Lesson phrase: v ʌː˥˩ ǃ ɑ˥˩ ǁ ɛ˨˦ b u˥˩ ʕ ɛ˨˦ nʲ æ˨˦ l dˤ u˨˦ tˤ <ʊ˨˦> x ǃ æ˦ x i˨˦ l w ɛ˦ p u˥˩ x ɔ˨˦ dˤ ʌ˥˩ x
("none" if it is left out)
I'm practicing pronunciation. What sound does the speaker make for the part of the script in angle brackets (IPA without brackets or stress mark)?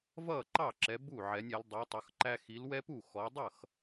ʊ˨˦